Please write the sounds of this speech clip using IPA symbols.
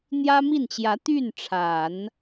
n̪ j ä˥ m i˥˩ n t͡ɕ j ä˧˥ t̪ y˥˩ n ʈ͡ʂʰ a˨˩˦ n

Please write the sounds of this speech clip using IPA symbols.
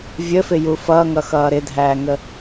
vʲ ə f ɪ j u f ʌ ŋ ʌ x ʌː ɾ ɪ dʱ æː ŋ ə

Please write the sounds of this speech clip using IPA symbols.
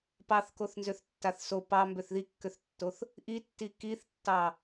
p ɑ θ k o θ n z ø θ tː a θ s o p ɑ m b ø θ ð i kː ø θ tː o θ | ʔ i tː i k i θ tː ɑ

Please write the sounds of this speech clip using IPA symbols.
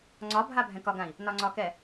ŋ͡ǀ ɒ bʱ a bʱ ɛ̃ k ɒ ɡ ã i̯ | n ɒ ŋ͡ǀ ɒ k ɛ

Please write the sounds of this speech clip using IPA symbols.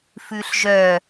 f ʉ ɬ ʒ œ

